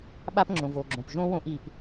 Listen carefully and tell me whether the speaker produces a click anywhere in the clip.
yes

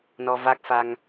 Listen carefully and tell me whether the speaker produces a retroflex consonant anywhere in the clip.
no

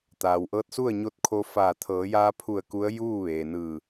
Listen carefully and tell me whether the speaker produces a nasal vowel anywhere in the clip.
no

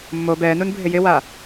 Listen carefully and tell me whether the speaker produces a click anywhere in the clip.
no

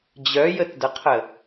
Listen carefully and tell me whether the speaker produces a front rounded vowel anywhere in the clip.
yes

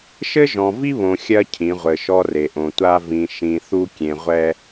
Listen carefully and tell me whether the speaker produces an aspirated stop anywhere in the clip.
yes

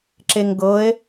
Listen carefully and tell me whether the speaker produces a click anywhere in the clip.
yes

